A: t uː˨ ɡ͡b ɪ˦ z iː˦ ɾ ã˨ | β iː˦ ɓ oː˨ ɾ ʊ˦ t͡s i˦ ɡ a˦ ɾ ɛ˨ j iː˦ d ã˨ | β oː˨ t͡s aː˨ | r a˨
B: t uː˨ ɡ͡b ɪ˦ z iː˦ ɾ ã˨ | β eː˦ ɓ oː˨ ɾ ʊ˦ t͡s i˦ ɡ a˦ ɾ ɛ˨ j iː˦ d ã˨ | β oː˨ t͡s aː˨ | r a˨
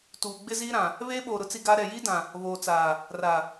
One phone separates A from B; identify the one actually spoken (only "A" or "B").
B